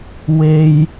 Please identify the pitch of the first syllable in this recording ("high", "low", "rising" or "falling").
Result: low